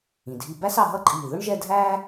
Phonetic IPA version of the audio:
ĩ˩˧ dʱi˧ bæ˥sɑ˧ɦʌ˥ǃʼiː˧˩ ðʊ˥ɳʒɛ˥˧dʱæː˥

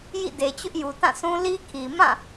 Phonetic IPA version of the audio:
jḭ˦˨de˨ t͡ɕʊ˦ʔju˨tã˦˨sʰũ˦ li˦kʰi˨ mã˦˨

